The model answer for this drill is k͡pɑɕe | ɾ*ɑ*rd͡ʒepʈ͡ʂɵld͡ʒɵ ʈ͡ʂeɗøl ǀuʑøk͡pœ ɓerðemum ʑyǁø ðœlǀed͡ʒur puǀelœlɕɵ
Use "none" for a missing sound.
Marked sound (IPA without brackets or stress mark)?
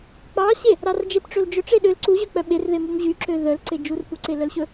ɑ